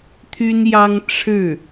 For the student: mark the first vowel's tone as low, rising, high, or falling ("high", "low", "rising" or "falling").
high